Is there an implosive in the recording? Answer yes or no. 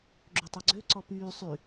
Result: no